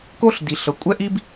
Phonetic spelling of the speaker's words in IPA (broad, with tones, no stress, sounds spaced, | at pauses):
k o˥ ɬ d i˩ ɬ ɤ˩ kʷʼ ɛ˥ ʔ i˥ b